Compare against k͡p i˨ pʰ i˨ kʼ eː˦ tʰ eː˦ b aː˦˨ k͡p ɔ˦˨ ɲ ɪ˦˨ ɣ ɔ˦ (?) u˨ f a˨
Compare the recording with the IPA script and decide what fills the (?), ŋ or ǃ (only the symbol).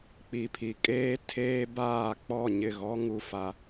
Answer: ŋ